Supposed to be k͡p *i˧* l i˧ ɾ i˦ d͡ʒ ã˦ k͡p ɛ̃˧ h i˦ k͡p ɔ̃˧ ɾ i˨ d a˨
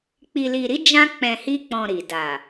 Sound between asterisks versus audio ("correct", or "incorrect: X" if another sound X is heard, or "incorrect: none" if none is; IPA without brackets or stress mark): correct